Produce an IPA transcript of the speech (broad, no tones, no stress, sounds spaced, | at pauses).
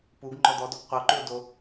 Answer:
p u ɡ ŋ͡ǃ ɔ d̪ ɔ d ɔ ɡ qʷ e ʊ̯ ǃ ʉ ʊ̯ d o